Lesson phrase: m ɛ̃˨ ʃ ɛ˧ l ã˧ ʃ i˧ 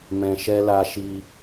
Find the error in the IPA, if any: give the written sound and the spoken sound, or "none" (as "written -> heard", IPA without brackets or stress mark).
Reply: ã˧ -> a˧